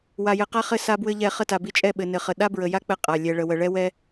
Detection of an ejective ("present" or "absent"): present